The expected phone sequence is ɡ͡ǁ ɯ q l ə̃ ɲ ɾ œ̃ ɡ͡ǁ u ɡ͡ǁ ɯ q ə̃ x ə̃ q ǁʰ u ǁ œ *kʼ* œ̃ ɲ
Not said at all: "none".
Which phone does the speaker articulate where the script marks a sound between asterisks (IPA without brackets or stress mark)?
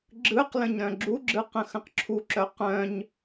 q